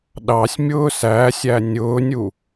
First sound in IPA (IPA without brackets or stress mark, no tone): ɗ